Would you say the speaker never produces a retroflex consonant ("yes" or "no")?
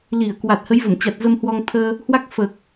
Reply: yes